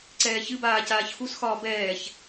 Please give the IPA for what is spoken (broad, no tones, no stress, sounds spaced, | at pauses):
ǀ ɛː ç ɨ b aː c aː ç x u s x ɒː b ɛː ç